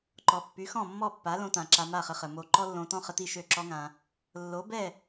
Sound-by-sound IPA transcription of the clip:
ǃ ɔ˩ pː y˩˥ x ɔ̃˥˩ mː ɔ˥˩ pː a˩˥ l õ˧ t ã˩ ǁ a˧ m a˥˩ χ ə˧ χ ə˩ m o˧ ǃ ɔ˥ lː õ˧ t ɔ̃˥ χ ə˧ t i˥˩ ʃ ø˥˩ ǁ ɔ˥ ŋ ã˧ | lː o˩˥ b ɛ˥˩

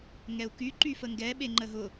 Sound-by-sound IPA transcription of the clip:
ŋ ɛ u̯ k y ǃ y f ə ŋ ɡ ɛ ɓ e ŋ͡ǃ ə ɦ ʊ

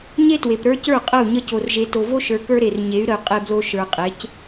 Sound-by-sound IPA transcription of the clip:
ɲ e˦ t w e˨ p ɾ ə˞˦ c ə˞˦˨ qʼ ə˦˨ u̯ ɲ ə˦ c o˨ r ʒ e˨ t o˨ v o˦ ʃ ə˞˨ k ə˞˦ ɾ e˨ r ɲ e˨˦ y̯ ɾ ə˨ y̯ qʼ e˨ b l o˨ ʃ ə˞˨ qʼ e˨˦ c

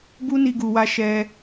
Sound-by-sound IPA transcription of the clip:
b u˦ n i˧ ɡ u˨ w a˧ ʃ ɛ˧

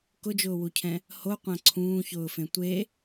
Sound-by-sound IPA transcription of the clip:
k ʊ d͡ʒ ʊː w u cʰ ɛ̃ | h o qʷ ã ǀʰ ũː ç ʊː f ẽ tʷ e

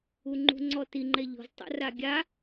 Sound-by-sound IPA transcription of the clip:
u ŋ͡ǃ ṳ ŋ͡ǀ ɔ t i ŋ͡ǃ ɛ ʎ ɔ̤ z tˤ a̰ r a ɡʲ a

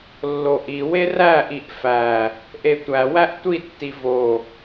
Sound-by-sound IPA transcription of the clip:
lː o ʔ i w e r æ ʔ i ʔ f æ | ʔ e tʷ æ w æ ʔ tʷ i tː i v o

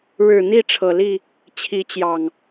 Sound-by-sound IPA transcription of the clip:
ɻ ɻ̩˨˩ n̪ i˥˨ ʈ͡ʂʰ ɤ˨˩ l i˥˨ | t͡ɕʰ i˨˦ t͡ɕ j ɑ˨˩ ŋ

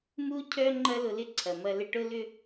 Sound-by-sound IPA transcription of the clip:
m u˥ cʰ œ˥ ŋ͡ǃ ɐ˥ l ʊ˧ l ɪ˥ ǀʰ ɐ˩ m ɐ˧ l ɪ˧ ʈ ʊ˥ l ʏ˥

